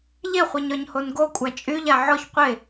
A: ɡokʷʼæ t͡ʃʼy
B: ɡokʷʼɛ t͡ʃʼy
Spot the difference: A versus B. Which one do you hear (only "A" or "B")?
A